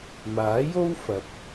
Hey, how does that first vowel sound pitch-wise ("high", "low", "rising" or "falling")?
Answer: rising